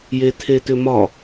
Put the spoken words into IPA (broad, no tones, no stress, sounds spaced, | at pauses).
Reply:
j e tʰ e t ʏ m ɒ